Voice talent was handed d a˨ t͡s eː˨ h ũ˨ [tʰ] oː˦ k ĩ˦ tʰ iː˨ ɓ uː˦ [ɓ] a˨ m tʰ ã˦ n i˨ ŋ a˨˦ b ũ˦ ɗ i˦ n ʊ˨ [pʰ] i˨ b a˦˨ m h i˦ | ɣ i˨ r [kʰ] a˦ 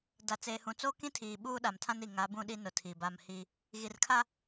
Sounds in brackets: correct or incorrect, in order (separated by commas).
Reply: incorrect, incorrect, incorrect, correct